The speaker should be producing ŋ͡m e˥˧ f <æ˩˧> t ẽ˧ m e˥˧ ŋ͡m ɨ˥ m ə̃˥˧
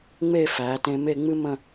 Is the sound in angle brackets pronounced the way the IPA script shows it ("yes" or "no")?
yes